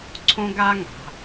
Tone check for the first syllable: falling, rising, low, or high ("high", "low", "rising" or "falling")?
high